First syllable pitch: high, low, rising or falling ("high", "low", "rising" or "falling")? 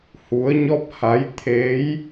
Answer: rising